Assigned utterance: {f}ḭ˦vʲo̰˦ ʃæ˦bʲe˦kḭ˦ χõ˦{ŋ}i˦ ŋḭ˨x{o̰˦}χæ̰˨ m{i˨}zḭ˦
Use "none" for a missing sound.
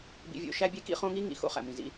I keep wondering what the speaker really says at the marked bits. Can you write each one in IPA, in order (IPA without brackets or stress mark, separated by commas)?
b, ŋ, o̰˦, ĩ˨